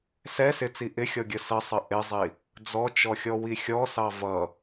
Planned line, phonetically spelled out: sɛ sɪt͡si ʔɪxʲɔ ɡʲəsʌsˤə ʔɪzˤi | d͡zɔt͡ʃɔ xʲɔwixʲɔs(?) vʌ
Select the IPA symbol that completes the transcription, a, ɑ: ɑ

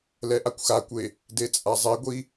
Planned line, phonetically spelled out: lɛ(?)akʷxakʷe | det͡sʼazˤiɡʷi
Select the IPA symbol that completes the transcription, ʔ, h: ʔ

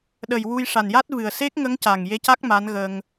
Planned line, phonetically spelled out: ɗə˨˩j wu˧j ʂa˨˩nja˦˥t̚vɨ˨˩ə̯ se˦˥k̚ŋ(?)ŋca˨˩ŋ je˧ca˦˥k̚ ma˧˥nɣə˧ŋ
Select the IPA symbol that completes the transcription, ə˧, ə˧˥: ə˧˥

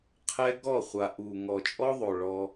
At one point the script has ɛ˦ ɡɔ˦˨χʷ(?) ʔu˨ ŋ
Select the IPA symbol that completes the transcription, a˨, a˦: a˨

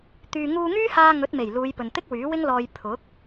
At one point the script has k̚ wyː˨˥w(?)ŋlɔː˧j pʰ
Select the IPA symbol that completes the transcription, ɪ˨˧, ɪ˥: ɪ˥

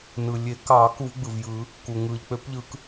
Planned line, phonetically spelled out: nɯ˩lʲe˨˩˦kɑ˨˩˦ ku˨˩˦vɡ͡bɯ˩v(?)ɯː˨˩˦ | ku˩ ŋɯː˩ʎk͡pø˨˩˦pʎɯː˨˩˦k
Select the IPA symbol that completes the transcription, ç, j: j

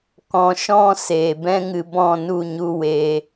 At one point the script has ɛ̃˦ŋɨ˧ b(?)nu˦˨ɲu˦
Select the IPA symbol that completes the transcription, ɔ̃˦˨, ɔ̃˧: ɔ̃˦˨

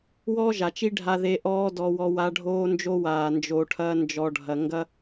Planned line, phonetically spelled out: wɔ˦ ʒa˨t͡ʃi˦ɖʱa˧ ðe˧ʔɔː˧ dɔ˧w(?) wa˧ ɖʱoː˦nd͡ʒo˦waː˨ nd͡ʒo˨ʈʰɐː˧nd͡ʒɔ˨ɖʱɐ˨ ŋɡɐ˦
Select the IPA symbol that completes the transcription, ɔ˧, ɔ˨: ɔ˧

